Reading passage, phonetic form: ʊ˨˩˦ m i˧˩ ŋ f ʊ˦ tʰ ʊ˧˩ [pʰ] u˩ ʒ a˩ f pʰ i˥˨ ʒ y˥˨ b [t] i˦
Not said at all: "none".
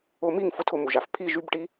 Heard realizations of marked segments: m, ʈ

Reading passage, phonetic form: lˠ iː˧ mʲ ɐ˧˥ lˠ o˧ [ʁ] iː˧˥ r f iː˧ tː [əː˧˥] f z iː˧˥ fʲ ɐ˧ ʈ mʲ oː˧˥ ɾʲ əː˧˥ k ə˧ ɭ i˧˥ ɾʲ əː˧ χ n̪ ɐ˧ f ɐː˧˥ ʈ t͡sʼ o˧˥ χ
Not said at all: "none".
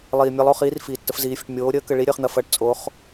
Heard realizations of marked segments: χ, ə˧˥

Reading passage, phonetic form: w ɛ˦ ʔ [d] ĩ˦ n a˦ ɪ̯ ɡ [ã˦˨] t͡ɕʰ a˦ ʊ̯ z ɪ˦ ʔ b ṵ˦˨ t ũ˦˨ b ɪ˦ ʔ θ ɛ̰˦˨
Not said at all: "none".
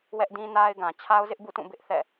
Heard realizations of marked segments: d, ã˨

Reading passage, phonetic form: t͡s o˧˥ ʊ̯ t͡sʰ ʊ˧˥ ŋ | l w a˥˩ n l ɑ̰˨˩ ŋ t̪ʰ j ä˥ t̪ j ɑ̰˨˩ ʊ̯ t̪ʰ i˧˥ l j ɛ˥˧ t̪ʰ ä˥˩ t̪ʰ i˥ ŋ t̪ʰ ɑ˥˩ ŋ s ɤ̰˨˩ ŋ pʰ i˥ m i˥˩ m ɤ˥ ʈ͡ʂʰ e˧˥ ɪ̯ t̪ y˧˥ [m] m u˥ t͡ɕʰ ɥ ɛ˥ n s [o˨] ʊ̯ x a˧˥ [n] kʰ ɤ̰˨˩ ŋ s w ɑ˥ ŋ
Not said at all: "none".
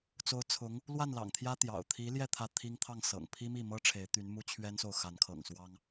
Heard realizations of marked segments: n, o˨, n

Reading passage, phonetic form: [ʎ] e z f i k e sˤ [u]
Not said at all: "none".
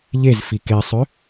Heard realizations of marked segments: ʎ, ø

